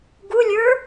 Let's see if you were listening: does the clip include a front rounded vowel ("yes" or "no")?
no